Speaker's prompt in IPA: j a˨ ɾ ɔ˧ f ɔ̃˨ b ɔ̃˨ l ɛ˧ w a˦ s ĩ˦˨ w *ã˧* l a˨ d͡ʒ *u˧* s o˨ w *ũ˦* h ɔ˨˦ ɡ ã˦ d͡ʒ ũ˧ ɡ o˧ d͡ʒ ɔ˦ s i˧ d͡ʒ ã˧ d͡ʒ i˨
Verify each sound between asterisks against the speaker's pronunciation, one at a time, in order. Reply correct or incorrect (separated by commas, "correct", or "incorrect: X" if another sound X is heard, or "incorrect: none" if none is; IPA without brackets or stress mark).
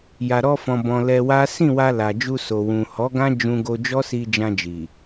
incorrect: a˧, correct, incorrect: ũ˨